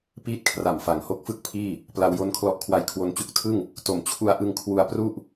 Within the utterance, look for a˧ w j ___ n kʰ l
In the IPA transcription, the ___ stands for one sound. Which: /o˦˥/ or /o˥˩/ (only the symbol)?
o˦˥